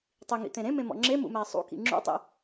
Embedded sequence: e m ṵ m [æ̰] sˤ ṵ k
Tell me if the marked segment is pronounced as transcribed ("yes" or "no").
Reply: no